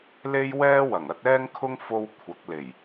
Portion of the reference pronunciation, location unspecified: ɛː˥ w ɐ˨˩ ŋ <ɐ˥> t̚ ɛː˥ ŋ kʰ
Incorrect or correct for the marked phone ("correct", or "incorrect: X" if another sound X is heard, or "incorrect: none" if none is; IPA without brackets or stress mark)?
incorrect: ɐ˨˥